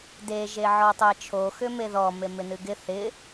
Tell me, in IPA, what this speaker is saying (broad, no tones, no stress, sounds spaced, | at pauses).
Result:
d e ʒ e ʕ ɔ tˤ e t͡ʃʰ o x ʏ m e ð ɔ m e m ɪ n ɨ ɡ ɪ θ ɪ